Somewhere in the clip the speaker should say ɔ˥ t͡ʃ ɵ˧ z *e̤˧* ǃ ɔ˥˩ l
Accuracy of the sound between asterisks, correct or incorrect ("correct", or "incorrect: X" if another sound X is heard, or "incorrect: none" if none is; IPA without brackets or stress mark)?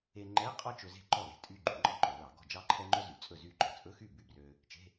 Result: incorrect: e̤˥˩